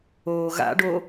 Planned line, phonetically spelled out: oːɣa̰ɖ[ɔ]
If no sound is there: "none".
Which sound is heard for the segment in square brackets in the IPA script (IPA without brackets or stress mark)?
o